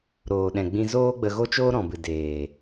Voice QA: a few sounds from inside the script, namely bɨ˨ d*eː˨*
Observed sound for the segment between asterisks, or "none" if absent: eː˨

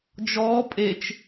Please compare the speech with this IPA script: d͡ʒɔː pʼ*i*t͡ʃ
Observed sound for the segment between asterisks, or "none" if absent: e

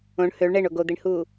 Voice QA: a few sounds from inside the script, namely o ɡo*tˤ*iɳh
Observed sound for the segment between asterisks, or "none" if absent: d̪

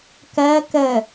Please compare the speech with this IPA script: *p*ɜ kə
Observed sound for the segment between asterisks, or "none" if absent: k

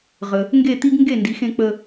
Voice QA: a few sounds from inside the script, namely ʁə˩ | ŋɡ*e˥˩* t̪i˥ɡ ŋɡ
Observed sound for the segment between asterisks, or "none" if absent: e˥˩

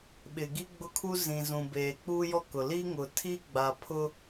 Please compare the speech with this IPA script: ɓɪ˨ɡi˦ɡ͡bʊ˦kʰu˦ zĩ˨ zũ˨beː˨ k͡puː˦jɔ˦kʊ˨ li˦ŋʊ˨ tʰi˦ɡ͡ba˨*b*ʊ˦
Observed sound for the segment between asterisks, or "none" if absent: pʰ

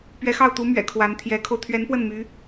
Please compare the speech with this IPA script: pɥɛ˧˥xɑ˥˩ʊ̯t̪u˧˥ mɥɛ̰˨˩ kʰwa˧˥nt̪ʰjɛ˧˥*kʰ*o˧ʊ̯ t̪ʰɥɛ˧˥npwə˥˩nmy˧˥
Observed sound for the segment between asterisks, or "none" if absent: kʰ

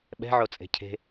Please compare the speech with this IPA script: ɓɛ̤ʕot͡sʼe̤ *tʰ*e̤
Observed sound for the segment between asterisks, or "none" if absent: cʰ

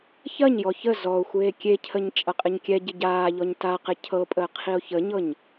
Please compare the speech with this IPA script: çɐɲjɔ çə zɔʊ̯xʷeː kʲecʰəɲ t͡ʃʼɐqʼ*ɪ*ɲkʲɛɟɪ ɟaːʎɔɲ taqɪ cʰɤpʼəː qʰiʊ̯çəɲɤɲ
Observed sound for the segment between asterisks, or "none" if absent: ɪ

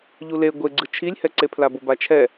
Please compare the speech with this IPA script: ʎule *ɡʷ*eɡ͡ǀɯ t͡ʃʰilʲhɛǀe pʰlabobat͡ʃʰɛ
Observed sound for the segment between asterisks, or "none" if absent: ɡʷ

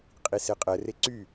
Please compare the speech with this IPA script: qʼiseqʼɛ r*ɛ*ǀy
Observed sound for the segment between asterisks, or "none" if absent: e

